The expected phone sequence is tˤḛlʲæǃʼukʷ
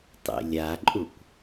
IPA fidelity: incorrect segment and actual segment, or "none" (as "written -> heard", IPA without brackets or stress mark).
æ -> a